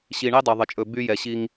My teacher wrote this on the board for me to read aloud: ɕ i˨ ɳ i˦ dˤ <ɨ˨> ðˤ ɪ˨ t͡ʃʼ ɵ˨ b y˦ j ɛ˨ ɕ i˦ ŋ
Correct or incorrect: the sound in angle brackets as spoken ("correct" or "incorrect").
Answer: incorrect